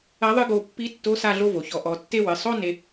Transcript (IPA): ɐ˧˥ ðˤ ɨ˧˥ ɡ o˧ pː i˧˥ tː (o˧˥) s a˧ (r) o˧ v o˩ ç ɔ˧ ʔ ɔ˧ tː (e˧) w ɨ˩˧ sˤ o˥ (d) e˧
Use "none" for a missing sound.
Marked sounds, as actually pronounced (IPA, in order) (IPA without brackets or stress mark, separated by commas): o˧˥, ɮ, e˥, n